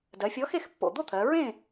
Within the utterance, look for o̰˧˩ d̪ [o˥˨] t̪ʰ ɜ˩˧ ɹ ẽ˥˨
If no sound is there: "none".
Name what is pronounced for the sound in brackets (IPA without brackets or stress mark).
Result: o˥˨